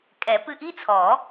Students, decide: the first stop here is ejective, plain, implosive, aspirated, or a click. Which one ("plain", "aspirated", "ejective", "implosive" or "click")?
ejective